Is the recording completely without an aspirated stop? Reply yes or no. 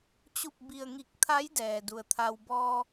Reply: no